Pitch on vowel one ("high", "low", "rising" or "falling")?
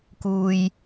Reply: low